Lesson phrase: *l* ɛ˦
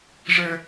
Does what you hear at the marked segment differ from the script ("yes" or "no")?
yes